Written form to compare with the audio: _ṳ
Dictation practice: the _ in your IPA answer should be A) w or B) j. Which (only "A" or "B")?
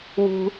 A